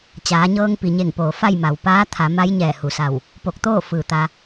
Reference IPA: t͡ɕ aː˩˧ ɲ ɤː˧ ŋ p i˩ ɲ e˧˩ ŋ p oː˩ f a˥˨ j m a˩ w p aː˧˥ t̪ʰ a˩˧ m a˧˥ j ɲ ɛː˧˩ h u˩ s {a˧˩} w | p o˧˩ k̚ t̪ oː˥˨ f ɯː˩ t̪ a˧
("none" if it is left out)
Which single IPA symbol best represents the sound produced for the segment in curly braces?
a˧˩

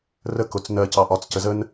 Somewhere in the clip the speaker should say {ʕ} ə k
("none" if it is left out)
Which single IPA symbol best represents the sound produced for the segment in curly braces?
r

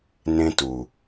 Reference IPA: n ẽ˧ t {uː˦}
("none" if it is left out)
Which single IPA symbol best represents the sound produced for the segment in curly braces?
uː˨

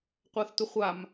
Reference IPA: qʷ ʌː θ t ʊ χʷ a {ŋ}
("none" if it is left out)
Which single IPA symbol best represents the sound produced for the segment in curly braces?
m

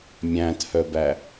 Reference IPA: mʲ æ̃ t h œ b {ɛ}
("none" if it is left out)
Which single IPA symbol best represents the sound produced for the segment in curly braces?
æ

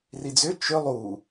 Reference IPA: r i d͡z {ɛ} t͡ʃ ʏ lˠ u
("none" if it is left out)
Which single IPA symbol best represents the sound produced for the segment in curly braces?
ʏ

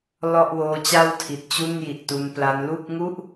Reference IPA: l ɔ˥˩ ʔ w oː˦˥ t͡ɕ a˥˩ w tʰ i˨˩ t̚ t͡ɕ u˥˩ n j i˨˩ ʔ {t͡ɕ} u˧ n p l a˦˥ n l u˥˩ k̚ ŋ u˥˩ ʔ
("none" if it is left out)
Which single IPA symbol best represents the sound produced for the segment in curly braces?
t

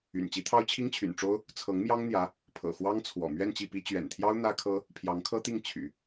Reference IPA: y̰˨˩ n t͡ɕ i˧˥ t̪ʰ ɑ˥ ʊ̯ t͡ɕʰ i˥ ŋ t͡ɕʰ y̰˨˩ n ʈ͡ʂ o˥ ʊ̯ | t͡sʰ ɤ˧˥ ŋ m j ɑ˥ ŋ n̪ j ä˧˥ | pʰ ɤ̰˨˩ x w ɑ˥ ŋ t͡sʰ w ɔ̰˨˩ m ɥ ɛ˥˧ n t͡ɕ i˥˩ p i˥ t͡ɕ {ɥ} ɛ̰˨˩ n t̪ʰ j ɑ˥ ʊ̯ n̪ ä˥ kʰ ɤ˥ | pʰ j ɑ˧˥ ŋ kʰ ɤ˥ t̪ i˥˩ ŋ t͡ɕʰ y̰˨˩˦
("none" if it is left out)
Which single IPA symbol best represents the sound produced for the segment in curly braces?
ɥ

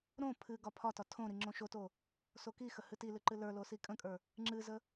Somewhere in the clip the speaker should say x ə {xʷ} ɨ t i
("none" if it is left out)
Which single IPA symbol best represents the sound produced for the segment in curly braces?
h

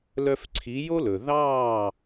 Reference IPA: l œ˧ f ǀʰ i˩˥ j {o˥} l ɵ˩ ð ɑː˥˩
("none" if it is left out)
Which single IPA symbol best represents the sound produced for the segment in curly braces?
o˥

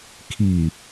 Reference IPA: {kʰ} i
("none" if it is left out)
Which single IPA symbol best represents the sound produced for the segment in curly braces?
kʰ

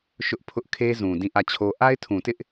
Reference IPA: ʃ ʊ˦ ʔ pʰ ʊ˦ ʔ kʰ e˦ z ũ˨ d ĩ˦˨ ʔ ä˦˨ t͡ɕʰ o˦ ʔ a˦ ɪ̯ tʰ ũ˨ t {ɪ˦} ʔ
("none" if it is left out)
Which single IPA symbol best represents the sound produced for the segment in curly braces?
ɪ˦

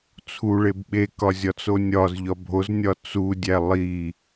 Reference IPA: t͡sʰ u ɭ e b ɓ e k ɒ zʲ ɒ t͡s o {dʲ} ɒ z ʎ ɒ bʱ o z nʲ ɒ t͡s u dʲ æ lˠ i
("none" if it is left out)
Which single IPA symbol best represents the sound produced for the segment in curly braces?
nʲ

